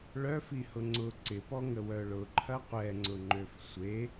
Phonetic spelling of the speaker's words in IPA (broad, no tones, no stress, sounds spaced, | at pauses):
ɭ œ f i h ʊ ŋ͡ǀ ʊ ǀ ɪ p ɔ ŋ ə w œ ɭ ʊ ǃʰ ɐ qʷ ɛ ŋ͡ǀ ʊ ŋ͡ǃ ø f sʷ e